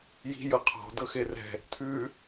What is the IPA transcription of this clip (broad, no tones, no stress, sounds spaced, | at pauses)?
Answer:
j i̤ j ɤ qʰ ɔ̤ d ɤ x e r ɛ̤ | t̪ʰ ʉ